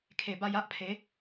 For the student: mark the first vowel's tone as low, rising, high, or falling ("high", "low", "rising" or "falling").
low